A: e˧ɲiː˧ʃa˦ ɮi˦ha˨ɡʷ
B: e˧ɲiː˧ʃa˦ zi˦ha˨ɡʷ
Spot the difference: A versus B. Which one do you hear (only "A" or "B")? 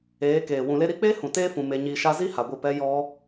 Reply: B